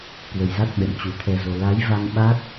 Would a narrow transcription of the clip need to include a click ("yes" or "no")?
no